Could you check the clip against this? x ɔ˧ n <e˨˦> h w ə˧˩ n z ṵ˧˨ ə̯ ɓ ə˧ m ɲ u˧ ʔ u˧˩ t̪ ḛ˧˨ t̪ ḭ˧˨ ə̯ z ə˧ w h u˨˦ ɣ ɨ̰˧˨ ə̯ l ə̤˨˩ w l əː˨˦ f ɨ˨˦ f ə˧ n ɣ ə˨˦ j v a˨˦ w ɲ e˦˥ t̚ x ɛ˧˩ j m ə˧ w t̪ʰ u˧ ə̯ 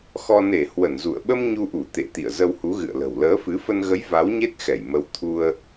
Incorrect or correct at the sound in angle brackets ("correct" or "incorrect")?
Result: incorrect